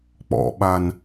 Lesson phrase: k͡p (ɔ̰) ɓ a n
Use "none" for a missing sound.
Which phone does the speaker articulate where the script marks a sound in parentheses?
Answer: ɔ̰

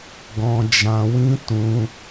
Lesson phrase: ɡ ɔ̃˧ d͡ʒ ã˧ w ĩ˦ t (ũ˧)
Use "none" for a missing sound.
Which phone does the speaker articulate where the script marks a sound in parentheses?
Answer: ũ˧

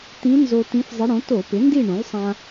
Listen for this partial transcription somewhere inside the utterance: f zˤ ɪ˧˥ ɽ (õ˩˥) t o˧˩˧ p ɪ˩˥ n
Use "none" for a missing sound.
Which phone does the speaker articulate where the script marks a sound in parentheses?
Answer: õ˩˥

